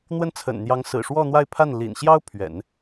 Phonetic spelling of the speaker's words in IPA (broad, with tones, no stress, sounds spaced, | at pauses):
n̪ w ə˥˩ n t͡sʰ ə̰˨˩ n n̪ j ɑ˧˥ ŋ s ɹ̩˨˩ ʂ w ɔ˥˧ n̪ w a˥˧ ɪ̯ pʰ a˥˩ n l ḭ˨˩ n ɕ j ɑ˥ ʊ̯ pʰ ɥ ɛ̰˨˩˦ n